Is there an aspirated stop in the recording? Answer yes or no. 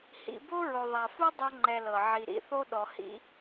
no